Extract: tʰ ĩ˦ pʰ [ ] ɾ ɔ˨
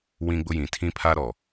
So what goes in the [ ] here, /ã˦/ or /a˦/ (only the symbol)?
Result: a˦